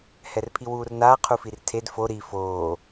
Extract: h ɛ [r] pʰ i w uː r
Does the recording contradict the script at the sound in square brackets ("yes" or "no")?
no